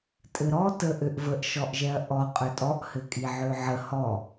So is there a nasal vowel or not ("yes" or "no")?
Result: no